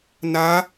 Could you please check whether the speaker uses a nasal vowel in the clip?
no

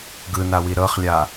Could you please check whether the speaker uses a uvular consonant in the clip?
yes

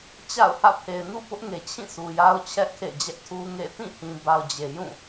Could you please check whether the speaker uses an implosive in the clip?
no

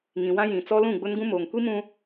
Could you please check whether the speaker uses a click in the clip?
no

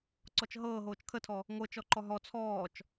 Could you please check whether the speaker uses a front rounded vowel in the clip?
no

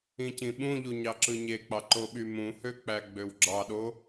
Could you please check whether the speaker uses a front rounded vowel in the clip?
yes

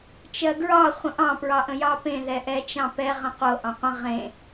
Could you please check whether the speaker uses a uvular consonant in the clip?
yes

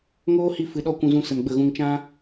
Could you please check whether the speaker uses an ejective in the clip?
no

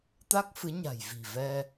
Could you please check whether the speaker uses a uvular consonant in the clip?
no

